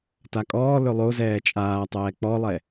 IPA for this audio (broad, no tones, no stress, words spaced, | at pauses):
takʼɔː lɵlˠo zɛːt͡ʃʼaːtˤɛː k͡pɔlˠɛ